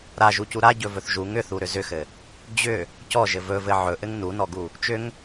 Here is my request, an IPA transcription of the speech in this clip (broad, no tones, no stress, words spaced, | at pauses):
ɾaʒucu ɾaɟɵvɵθ ʒuŋ ʏθuɾʏ zʏxɘ | d͡ʑʏ | cɔʒɘ vɵvɘ ʕɵʔɘŋ nunɔɡu | t͡ʃʏŋ